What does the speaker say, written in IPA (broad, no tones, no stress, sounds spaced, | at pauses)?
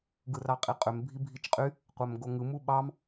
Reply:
ɡ ɯ r ɑ qʼ i qʼ ø m bʱ i bʱ i t͡ʃ qʼ y | qʷ æ m ɡ o ŋ ɯ m u ɓ ɑ m